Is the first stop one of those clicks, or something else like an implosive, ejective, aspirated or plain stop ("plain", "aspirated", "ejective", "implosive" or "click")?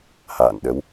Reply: implosive